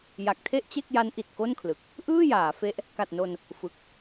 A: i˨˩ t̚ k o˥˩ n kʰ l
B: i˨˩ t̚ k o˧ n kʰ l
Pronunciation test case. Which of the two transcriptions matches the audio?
A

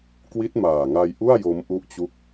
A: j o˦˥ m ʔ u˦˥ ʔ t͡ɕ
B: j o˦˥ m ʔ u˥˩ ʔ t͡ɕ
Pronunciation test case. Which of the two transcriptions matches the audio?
A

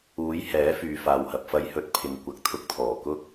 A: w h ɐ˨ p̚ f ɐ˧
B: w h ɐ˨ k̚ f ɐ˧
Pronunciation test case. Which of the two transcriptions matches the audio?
A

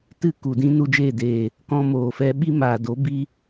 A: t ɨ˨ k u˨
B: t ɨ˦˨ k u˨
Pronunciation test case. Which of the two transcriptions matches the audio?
B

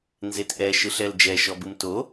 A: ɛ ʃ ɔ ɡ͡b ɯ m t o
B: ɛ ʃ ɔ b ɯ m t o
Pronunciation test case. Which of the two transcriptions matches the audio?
B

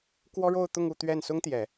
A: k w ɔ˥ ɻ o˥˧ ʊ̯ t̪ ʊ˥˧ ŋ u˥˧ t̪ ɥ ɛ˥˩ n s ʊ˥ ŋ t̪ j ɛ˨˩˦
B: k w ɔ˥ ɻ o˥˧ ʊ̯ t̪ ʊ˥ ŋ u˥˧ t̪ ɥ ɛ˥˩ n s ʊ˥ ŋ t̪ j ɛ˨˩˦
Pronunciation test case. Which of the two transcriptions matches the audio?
A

